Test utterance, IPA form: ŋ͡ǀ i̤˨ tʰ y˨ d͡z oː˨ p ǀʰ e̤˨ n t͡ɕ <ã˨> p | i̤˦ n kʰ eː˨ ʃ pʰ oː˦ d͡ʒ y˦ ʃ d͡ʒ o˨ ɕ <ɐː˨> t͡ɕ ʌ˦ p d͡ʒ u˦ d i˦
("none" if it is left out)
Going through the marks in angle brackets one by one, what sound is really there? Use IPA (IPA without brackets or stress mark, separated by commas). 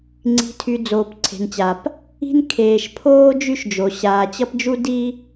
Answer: a˨, aː˨